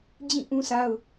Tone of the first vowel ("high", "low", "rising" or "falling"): falling